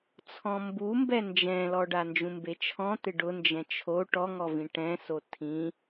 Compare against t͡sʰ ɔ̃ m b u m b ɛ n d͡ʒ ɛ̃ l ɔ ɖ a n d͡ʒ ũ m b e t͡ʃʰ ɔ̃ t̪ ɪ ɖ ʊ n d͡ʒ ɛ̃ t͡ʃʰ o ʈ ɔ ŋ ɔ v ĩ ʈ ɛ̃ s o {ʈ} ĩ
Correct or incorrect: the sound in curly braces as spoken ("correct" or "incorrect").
incorrect